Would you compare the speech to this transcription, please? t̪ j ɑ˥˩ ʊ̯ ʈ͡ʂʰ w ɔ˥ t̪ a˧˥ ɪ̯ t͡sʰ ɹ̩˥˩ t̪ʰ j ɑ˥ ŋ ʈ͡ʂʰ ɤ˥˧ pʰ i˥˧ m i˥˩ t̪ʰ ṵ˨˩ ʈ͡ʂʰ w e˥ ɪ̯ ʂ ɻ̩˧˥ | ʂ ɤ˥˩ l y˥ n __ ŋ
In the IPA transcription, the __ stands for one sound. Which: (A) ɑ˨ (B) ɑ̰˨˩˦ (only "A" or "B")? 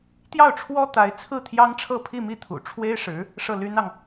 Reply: A